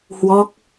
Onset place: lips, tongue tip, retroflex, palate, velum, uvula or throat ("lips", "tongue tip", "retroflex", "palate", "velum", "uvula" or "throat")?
throat